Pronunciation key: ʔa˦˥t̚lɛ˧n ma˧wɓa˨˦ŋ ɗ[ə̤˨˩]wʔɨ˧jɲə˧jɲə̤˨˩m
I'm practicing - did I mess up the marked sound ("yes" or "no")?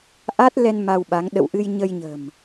yes